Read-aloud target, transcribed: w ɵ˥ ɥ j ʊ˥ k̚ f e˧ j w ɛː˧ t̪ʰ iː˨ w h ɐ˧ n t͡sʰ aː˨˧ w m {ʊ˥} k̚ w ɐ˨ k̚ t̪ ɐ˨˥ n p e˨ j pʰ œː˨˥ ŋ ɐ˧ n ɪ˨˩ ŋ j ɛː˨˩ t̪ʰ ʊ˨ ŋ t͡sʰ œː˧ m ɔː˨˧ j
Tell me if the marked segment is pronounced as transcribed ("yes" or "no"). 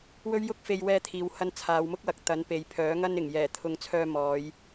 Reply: yes